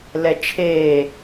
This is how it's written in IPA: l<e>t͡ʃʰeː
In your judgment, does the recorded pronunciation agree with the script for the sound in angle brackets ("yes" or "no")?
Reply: no